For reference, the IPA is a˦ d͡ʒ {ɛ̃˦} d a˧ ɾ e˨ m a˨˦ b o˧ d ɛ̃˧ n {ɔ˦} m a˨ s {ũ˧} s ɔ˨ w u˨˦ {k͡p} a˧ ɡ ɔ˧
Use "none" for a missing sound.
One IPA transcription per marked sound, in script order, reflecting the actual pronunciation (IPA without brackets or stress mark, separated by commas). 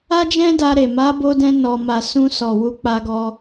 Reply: ɛ̃˦, ɔ˨, ũ˧, k͡p